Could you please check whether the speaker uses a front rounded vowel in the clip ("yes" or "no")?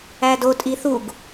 no